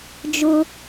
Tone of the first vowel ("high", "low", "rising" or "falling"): high